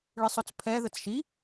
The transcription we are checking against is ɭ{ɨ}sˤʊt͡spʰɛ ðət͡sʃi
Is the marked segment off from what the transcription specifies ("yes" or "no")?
no